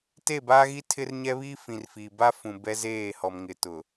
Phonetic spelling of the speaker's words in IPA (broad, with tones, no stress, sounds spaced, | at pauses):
t e˦˨ b aː˦ ɣ i˦ tʰ ɪ˦ r ɲ ɛ˦ β iː˦ f ĩ˨ r f i˨ b a˦ f ũ˨ b ɛ˦ z eː˦˨ h ɔ˨ m ŋ ɪ˨ t ʊ˨